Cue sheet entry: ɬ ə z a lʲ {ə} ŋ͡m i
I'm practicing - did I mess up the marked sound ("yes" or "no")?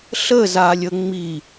no